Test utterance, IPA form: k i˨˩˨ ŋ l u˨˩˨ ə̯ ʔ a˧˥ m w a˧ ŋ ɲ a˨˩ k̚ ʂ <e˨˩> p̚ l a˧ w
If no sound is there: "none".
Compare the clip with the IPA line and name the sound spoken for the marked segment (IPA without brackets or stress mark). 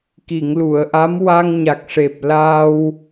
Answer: e˨˩